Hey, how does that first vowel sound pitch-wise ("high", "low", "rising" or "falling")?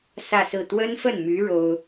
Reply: falling